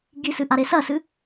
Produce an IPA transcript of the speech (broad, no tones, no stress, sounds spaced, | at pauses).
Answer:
ɡ i s ɨ ʔ a ɾ e s ɐ s ɨ